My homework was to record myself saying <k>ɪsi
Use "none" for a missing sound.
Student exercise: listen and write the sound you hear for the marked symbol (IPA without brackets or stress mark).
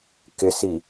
k